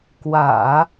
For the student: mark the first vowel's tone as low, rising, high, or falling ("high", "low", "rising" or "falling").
low